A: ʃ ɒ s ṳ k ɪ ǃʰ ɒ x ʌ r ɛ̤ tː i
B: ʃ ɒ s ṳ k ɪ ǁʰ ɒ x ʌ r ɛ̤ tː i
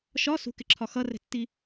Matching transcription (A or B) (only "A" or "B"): B